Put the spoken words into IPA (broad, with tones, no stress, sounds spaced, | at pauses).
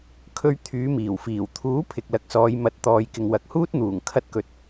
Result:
kʰ ɵ˧ ɥ t̪ʰ yː˨˧ m iː˨˩ w f iː˨˩ w t̪ʰ uː˨˥ pʰ ɪ˨ k̚ l ɐ˨˥ k̚ s ɔː˨˧ j m ɐ˨˥ t̚ t̪ ɔː˨˧ j k ɪ˨ ŋ w ɐ˨ k̚ h uː˥ t̚ n̪ uː˨˩ ŋ kʰ ɐ˧ t̚ k ɵ˨ t̚